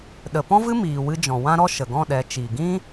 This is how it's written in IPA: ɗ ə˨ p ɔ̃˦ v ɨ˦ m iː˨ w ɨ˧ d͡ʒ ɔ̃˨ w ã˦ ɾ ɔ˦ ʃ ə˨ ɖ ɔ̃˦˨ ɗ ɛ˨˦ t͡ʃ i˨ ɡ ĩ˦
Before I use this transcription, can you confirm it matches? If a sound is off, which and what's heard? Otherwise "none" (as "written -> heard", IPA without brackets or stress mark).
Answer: ɖ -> ɡ